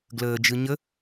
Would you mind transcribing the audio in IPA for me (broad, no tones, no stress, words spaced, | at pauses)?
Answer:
ɡləːd͡ʒɯ ɲə